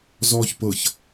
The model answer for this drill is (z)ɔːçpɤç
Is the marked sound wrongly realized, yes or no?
no